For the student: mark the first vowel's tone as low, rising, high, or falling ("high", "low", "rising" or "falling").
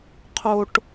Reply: low